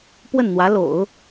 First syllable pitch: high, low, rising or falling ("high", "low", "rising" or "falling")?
falling